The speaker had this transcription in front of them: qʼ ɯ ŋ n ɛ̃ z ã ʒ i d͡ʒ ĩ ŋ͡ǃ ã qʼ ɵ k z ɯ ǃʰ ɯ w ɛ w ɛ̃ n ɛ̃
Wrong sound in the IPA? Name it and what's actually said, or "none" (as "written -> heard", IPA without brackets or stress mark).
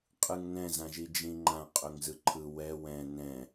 k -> ŋ